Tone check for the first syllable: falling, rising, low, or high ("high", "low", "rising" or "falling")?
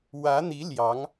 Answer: rising